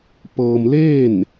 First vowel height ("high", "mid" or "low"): mid